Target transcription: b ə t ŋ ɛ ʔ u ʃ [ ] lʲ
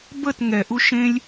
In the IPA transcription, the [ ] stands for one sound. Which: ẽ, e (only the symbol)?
ẽ